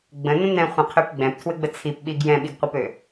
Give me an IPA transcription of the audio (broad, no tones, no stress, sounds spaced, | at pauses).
ɡ͡b ə̃ n ə̃ n ɛ̃ χʷ ɛ̃ qʰ ø p ɡ͡b ɛ̃ p tʰ w ɘ ɡ͡b ə t͡sʰ i p ɓ i ɡ j ɛ̃ ɓ i ɡ qʷ ə p ø